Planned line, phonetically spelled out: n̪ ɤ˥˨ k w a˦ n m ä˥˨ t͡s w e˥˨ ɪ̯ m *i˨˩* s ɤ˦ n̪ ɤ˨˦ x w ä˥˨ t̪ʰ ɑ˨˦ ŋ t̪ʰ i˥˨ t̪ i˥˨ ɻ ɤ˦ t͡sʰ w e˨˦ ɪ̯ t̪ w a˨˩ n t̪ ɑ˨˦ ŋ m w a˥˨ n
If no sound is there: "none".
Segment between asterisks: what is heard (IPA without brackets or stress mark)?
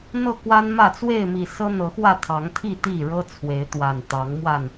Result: i˨˩